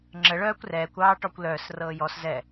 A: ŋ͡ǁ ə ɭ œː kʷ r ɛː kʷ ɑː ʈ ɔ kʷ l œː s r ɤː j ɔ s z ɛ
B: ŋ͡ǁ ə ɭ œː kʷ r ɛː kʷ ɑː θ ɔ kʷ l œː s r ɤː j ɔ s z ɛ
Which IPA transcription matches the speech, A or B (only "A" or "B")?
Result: A